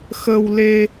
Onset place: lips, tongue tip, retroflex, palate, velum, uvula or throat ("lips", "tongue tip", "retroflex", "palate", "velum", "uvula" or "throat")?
velum